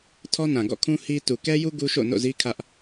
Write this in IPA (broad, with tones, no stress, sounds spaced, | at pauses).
tʰ ɔ˦ n ã˨ ɡ ɔ̰˦˨ kʰ ũ˦ h i˦ t u˨ k ɛ˦ j u˦ ɡ u˦ ʃ o̰˦˨ n o̰˦˨ z i˦ kʰ ä˦ ʔ